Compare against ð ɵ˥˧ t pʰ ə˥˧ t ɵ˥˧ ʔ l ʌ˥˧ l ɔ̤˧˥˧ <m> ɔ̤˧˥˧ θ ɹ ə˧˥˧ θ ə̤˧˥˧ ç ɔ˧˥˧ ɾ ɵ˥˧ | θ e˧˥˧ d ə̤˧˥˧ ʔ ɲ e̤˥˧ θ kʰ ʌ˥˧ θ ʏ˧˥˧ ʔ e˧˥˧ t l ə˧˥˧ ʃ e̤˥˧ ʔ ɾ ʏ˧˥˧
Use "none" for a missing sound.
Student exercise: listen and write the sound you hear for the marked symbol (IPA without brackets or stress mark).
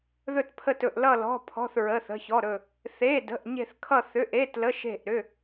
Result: pʰ